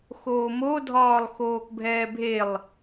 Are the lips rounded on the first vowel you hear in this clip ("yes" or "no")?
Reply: yes